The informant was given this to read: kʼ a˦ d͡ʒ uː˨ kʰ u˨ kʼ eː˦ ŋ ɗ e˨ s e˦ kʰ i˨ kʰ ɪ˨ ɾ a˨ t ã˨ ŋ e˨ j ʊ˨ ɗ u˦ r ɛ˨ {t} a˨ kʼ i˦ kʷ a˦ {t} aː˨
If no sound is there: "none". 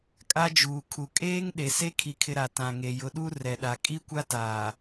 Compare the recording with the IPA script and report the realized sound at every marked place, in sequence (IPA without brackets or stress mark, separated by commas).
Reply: ɗ, t